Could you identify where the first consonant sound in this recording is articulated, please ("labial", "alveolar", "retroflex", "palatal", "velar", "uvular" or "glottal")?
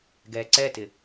velar